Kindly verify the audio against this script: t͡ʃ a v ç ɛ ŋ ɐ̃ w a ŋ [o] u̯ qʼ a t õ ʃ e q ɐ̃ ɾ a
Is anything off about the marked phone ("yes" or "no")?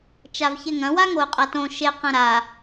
no